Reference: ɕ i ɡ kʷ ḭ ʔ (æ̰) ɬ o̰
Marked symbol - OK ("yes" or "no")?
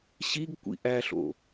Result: no